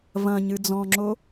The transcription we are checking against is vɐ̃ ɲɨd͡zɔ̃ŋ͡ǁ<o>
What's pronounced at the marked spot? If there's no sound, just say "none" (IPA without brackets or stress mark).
o